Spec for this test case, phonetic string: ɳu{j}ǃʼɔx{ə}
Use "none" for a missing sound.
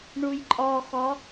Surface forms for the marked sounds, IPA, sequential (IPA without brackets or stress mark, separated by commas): j, ɔ